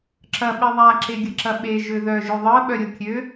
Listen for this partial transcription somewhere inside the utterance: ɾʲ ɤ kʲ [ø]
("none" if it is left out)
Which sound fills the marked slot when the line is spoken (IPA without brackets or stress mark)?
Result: ø